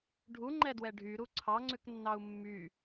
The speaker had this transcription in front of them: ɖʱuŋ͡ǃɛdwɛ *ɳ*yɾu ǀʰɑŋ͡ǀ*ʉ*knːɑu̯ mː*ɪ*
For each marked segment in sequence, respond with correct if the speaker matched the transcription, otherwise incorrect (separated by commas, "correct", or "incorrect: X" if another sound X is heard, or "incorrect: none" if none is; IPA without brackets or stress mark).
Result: incorrect: ɖʱ, correct, incorrect: y